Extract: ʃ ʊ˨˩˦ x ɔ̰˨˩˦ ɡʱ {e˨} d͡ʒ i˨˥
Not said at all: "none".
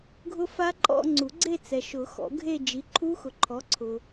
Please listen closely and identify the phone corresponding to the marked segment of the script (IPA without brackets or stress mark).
e˥˧